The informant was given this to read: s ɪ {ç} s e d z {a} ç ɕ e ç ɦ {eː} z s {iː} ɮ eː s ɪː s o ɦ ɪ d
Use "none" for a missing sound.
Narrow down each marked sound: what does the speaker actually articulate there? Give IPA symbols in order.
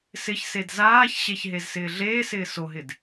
ç, aː, e, ɪː

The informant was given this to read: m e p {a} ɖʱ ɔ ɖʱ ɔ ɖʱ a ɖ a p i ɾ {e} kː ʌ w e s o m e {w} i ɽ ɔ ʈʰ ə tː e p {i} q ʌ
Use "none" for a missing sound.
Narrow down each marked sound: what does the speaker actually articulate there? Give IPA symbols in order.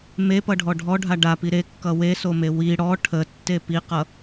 ʌ, e, w, i

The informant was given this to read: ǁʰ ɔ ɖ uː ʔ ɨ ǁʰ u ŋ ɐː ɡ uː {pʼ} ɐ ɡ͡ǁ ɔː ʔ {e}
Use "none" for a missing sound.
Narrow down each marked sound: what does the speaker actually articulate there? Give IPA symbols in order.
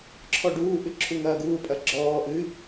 pʼ, ɨ

